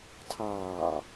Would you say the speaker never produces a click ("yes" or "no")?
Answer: yes